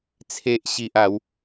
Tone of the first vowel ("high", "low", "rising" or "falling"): low